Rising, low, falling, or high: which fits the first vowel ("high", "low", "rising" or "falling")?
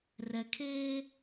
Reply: low